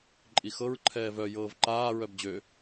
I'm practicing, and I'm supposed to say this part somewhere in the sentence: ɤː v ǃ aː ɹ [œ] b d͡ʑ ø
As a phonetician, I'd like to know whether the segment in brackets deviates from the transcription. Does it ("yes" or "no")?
no